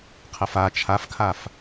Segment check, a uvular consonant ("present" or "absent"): present